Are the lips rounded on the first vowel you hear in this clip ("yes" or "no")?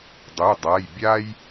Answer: yes